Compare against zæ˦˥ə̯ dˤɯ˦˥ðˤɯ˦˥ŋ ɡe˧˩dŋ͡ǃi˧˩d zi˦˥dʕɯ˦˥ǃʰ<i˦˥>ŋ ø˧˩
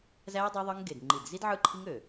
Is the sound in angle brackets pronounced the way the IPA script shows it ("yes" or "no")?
yes